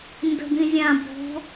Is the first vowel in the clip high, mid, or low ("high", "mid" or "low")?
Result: mid